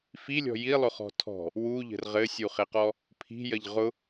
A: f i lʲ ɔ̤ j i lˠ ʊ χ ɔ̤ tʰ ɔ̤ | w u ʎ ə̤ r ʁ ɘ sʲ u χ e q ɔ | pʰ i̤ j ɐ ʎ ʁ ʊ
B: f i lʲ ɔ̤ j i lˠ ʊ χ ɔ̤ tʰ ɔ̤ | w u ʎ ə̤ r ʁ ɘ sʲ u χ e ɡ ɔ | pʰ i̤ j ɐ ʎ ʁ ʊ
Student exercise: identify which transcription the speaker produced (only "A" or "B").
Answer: A